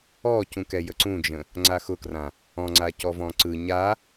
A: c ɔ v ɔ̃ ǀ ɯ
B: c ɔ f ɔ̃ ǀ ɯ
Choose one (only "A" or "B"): A